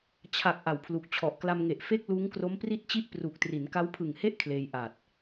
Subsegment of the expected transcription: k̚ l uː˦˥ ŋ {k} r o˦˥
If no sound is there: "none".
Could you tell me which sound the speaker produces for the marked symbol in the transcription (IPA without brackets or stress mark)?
k